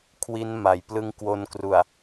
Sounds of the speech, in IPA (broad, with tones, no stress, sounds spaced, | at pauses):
kʰ w i˦˥ n m a˩˦ j p l ɯ˦˥ ŋ k w o˧ n k r u˨˩ a̯